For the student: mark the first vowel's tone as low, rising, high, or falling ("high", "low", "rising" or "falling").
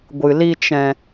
low